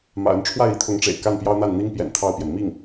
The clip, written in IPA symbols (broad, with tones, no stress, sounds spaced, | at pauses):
m ä̰˨˩ ə˧˥ n ʈ͡ʂʰ w a˥˩ ɪ̯ i˥ t̪ʰ ʊ˧˥ ŋ ʈ͡ʂ ḛ˨˩ ɪ̯ k a˥˩ n p j ɑ˥ ʊ̯ n̪ a˥˩ n n̪ i˥ ŋ p j ɛ̰˨˩ n t̪ʰ ɑ˥˩ ʊ̯ p j ɛ˩ n m i˥˩ ŋ